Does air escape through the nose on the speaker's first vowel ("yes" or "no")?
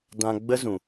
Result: yes